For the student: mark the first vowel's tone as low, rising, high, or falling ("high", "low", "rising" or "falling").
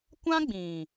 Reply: high